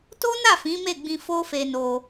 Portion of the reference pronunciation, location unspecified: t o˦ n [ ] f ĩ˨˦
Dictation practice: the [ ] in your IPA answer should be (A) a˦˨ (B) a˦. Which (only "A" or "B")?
A